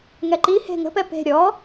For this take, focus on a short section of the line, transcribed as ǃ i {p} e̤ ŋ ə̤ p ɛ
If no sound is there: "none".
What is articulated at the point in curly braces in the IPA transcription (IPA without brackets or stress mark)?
h